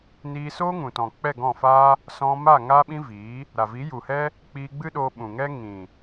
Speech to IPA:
n iː˧ s oː˦ ŋ ũ˨ t ɔ̃˨ k͡p ɛ˦˨ ɡ ɔ̃˦˨ f aː˦ | s ɔ̃˧ m a˦˨ ŋ aː˦ ɓ ĩ˦ v iː˨˦ | ɾ a˨ v i˨˦ j u˨ h ɛ˦ | k͡p iː˧ ɡ͡b ɨ˦ ɗ oː˧ ɓ ũ˨ ŋ ɛ˦ ŋ ĩ˨

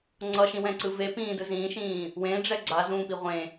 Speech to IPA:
ŋ͡ǀ ʌ ʃ ĩ w ɛ̃ ǀ ɯ v e p ĩː d ɯ z ĩː ʃ ĩː | w ẽ ɖ͡ʐ ɛ ɡ͡ǀ a z ũː p i ʁʷ ẽ

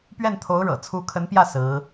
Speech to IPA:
p ɥ ɛ˥˩ n t̪ʰ o˧˥ ʊ̯ ɻ ɤ̰˨˩ t͡sʰ u˧˥ kʰ ə˧˥ n p j ä˥˩ s ɹ̩˧˥

